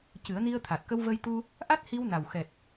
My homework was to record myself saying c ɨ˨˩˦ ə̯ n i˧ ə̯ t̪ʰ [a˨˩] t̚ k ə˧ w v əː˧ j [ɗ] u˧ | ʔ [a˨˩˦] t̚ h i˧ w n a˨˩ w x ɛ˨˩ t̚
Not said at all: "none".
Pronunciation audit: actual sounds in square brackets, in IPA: a˨˩, t̪, a˦˥

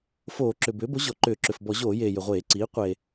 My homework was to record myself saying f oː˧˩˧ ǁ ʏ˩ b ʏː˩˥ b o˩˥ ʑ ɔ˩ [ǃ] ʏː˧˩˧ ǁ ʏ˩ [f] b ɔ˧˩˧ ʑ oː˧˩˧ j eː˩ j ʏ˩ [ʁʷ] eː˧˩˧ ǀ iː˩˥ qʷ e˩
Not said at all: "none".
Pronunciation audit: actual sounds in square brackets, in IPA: ǃ, f, ʁʷ

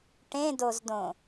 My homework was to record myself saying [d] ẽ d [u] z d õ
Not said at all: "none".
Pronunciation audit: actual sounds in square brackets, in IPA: ʈ, o

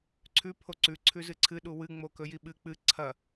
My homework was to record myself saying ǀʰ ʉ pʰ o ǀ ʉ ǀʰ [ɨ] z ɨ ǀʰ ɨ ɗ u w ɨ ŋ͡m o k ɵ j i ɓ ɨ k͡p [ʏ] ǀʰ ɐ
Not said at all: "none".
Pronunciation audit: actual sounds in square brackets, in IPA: ʉ, ɨ

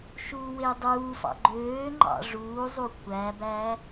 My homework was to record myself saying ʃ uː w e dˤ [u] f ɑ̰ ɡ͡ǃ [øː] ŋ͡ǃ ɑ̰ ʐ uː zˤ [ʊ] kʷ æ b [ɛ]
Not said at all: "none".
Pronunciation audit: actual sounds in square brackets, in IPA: uː, øː, u, æ

